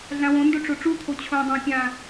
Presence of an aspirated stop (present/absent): present